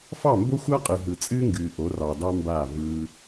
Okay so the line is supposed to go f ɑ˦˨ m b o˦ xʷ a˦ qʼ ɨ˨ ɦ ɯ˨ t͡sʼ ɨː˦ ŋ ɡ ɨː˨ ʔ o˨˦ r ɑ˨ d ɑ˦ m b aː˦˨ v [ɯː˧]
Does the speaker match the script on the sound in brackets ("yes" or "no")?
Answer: yes